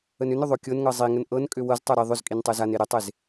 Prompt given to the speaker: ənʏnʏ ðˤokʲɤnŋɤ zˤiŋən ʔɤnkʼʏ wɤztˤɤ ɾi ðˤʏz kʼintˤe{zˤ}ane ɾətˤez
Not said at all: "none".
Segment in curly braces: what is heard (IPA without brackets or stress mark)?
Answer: z